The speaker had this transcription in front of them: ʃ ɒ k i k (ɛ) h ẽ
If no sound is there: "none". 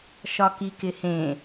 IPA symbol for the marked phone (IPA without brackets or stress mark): ɪ